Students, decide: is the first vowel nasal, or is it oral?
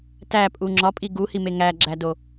oral